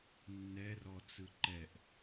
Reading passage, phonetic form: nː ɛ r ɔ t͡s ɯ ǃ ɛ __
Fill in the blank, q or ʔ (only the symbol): ʔ